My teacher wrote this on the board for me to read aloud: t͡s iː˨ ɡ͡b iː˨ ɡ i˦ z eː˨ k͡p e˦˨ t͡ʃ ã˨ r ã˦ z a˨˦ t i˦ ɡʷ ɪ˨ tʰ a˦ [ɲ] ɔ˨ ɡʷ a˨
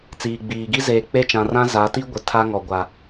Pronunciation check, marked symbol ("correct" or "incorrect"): incorrect